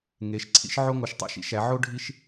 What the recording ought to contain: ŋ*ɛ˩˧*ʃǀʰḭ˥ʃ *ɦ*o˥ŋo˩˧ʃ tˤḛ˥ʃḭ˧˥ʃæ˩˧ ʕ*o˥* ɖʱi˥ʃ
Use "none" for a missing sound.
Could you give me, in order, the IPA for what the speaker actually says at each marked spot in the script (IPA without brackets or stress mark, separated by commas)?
e˩˧, ʕ, o˥